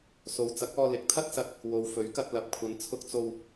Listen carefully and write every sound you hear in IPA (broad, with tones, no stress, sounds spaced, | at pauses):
s o˨˧ w t͡s ɐ˨˥ k̚ ɔː˧ l ɪ˨˥ k̚ t̪ʰ ɐ˥ t̚ s ɐ˧ t̚ | w o˨ w f ɵ˨˥ ɥ k ɐ˧ t̚ l ɐ˨˥ p̚ kʷʰ ɐ˨˧ n t͡sʰ ʊ˧ k̚ t͡s o˧ w